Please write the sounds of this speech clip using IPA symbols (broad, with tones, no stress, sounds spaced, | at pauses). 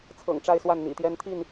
t͡sʰ ɤ̰˨˩ ŋ ʈ͡ʂ a˥˨ ɪ̯ s w a˥˨ n n̪ ḭ˨˩ t̪ j ɛ˦ n t̪ʰ i˥˨ n